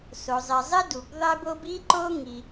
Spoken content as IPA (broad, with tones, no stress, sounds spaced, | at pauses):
s o˩ zˤ i˩ zˤ i˥ d u˩ b ðˤ e˥ b o˥ b i˥ ǃ o˥ ŋ i˩